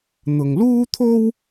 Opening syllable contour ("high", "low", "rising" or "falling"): low